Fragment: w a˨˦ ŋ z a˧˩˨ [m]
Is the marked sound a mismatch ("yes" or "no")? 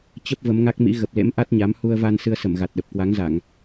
yes